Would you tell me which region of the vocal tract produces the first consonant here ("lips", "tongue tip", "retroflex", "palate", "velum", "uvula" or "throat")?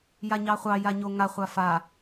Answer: palate